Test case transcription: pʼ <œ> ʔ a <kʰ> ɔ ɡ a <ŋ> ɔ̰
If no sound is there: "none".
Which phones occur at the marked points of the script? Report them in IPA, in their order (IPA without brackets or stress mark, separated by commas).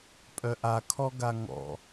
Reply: œ, kʰ, ŋ